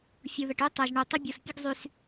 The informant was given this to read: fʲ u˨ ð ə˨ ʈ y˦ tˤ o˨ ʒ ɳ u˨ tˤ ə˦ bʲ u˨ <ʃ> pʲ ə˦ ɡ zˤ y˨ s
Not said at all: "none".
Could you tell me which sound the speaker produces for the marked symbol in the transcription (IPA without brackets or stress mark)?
s